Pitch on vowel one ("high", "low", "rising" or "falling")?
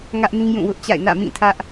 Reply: high